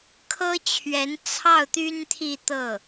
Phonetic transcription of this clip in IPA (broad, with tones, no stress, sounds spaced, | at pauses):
kʰ ɤ˥ t͡ɕʰ ɥ ɛ˧˥ n t͡sʰ ɑ˥˩ ʊ̯ t̪ y˥ n t̪ʰ i˥˧ t̪ ɤ˥˩